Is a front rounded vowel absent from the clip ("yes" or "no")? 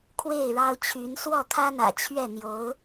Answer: no